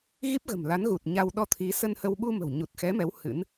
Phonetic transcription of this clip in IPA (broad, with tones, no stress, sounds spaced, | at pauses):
ɣ i˦˥ p̚ ɣ ə̤˨˩ m l a˨˦ n ɣ u˨˩ t̚ ɲ a˧ w ɗ ɔ˧ t̪ʰ i˨˦ s ə˧ n h ə˧ w ɓ u˧ m ə̤˨˩ w ɲ u˨˩ t̚ x ɛ˨˦ m ɛ˨˦ w h ɨ̰˧˥ n